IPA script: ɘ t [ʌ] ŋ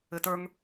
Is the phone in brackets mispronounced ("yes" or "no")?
yes